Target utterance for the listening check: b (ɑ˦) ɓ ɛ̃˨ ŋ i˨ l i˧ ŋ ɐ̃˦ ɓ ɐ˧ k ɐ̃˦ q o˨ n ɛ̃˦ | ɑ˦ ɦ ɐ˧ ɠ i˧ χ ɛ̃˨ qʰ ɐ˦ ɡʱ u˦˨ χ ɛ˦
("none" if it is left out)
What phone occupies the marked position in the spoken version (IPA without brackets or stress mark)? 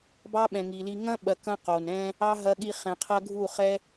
ɑ˦